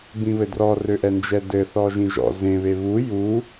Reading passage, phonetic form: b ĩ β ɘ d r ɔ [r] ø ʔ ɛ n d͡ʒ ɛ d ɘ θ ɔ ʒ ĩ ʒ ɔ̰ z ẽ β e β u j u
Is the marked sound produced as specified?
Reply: yes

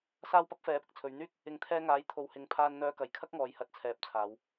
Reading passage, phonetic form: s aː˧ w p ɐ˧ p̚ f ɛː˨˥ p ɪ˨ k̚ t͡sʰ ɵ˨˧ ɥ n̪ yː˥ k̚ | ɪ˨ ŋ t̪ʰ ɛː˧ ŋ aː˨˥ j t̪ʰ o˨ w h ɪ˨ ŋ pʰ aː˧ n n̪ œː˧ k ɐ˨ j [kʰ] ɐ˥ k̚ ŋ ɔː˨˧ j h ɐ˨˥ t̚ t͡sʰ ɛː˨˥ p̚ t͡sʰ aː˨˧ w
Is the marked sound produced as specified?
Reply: yes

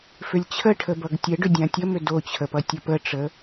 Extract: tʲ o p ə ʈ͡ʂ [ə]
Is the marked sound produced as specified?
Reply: yes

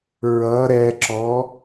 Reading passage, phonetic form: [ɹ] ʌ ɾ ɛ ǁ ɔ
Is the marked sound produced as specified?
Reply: yes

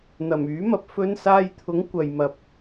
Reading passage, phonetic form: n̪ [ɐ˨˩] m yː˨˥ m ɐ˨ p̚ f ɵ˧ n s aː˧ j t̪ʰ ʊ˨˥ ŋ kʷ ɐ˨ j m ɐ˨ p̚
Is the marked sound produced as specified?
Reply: yes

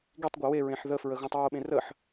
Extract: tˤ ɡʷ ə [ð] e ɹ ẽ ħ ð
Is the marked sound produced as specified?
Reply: no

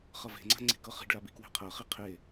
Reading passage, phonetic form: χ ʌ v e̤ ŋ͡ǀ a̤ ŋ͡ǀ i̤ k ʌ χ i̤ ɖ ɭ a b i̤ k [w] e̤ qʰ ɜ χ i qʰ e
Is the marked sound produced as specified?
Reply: yes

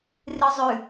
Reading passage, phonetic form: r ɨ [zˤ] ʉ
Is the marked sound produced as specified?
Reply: yes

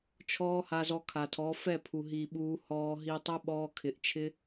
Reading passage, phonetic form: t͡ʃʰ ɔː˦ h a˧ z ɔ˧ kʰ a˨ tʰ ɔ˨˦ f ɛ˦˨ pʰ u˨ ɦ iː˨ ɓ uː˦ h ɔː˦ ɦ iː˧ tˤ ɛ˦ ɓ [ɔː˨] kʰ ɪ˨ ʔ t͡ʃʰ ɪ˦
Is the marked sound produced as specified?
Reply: no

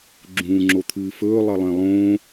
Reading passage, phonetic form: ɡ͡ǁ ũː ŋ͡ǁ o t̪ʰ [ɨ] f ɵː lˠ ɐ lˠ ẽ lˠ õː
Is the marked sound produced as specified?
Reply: no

